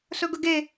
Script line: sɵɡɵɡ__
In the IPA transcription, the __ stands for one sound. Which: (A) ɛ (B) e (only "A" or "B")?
B